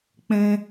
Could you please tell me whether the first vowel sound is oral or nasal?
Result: nasal